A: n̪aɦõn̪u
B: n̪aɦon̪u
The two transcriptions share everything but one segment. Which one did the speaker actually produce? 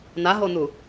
B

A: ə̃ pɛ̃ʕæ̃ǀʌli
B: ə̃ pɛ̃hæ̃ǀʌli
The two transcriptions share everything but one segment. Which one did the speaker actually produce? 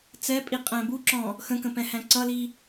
B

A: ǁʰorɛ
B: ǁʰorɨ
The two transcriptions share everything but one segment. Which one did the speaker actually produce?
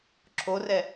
A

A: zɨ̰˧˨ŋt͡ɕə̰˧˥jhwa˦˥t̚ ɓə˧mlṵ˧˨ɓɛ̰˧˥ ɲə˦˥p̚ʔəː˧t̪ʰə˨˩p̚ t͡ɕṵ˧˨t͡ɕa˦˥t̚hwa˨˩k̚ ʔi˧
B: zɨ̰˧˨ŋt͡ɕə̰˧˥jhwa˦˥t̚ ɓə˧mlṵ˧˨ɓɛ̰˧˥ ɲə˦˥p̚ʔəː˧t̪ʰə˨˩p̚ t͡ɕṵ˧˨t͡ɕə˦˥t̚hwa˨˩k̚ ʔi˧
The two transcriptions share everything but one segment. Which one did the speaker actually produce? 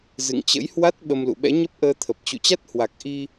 A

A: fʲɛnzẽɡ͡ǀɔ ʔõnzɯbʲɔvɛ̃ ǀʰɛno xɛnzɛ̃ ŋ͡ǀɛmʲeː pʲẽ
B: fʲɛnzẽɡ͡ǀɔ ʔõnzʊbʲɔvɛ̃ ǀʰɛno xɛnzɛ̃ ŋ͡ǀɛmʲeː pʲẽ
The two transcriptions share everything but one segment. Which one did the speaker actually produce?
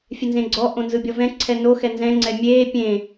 A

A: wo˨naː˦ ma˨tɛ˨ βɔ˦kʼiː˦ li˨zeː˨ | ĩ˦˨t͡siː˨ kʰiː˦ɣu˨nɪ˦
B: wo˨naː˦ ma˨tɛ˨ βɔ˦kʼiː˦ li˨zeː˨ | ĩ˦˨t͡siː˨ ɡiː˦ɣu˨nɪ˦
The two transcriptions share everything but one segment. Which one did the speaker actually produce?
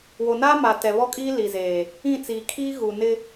A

